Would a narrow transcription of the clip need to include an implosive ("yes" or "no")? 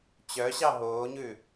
no